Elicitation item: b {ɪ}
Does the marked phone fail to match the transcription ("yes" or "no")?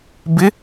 no